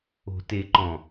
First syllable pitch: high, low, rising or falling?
low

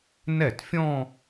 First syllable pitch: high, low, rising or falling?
falling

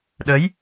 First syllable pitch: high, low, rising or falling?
rising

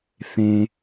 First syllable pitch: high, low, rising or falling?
low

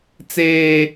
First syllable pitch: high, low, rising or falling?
low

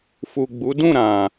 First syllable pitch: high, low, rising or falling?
low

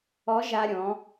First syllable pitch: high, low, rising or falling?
rising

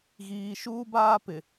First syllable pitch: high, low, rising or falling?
low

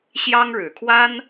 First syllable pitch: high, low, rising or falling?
high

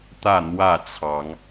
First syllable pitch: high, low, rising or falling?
falling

